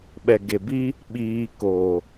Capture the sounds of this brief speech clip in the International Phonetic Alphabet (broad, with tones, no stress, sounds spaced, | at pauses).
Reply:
ɓ ɛ˨ ɡ e˨ b i˦ | ɓ iː˧ k oː˨